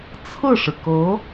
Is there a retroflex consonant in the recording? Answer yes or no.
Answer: yes